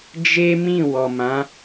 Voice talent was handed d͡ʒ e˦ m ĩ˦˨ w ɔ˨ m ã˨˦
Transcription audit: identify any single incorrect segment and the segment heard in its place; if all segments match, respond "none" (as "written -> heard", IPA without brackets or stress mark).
none